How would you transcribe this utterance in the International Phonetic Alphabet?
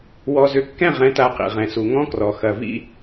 wɔ˨zʏ˨kːɛ̃˦˨ʁɛ̃˨˦ ta˦qḭ˨ʁɛ̃˨ su˨ŋɔ̃˦krɔ˨ xɐ˨vḭ˦

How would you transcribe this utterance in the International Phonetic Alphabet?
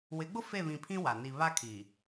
wɪ˨˦ɡ͡bʊ˦ fe˦˨βĩ˨pʰĩ˦ wa˨ ni˨βa˦kʰi˨

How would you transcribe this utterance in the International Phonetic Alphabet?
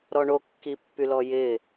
ɾɔɳo kːipːylɔjɪ

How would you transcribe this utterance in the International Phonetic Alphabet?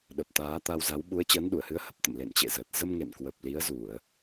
ɗə˨˩p̚ t̪aː˨˦t̪a˧wza˨˦w ɓu˨˦ə̯t͡ɕəː˨˦nɗu˧˩ə̯hɨ˨˦ə̯ hə˦˥p̚t̪ə̰˧˨m lḛ˧˨nt͡ɕḛ˧˨zəː˨˩t̚ zə˧mŋḛ˧˨nkwə˨˩p̚ li˨˦ə̯zu˧˩˨ə̯

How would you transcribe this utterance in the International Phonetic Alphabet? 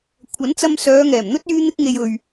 kʷʰɐ˨˥nt͡sɐ˧m sœː˨˧ŋɛː˨˩mn̪ɵ˥t̚ yː˥n̪ɪ˥k̚ŋe˧j ɵ˨ɥ

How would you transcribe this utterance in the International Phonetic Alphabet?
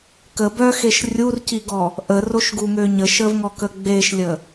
kə bœxeʃ rʲurciɡɔ | ʔəroʃɡuŋø ɲəʃəvŋɔkə ɡ͡beʃlʲə

